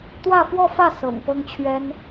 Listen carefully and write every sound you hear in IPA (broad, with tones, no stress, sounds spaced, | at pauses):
t̪ w ä˥˧ f w ɔ˥˧ f ä˥˩ s ɤ̰˨˩ ŋ p ɤ˥ ŋ t͡ɕʰ ɥ ɛ˥ n